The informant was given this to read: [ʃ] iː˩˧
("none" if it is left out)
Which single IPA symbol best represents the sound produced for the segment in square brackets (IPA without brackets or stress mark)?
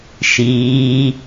ʃ